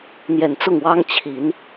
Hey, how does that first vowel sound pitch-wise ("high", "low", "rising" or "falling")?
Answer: low